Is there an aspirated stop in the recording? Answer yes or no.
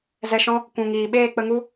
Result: no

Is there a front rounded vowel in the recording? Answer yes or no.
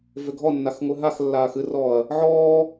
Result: yes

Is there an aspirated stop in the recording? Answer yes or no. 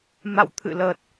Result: yes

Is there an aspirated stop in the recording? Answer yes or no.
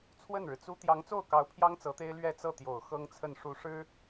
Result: yes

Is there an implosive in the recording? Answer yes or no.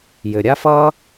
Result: no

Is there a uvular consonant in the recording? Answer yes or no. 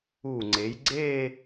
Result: no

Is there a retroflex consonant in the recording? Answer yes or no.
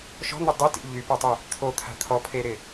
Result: no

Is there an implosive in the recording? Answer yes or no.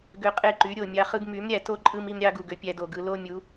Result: no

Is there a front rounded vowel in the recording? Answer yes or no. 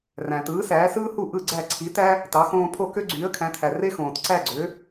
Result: yes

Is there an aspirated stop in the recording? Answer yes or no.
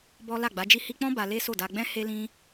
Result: no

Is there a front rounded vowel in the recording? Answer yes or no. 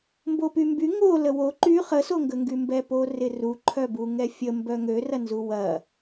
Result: yes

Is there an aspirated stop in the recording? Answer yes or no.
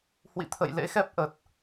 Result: yes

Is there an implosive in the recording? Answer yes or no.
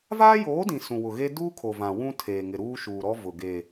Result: no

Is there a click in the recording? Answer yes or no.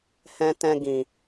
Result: no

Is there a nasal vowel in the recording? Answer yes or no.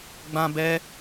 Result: yes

